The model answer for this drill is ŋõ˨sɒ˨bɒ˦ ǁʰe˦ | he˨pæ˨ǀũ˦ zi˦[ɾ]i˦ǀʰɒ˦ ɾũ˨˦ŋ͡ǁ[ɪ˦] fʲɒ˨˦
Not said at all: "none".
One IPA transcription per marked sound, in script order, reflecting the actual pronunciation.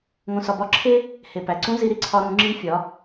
ɾ, i˦

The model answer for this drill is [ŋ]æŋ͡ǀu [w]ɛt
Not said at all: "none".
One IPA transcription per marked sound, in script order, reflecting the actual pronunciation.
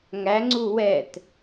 ŋ, w

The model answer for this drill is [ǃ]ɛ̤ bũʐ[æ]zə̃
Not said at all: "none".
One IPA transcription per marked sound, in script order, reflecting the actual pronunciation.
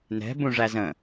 n, æ

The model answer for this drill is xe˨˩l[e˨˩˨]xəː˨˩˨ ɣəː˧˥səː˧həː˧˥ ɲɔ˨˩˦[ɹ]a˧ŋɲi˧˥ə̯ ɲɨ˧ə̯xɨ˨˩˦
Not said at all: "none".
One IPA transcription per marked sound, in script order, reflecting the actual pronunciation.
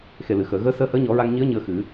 ɨ˨˩˨, ɹ

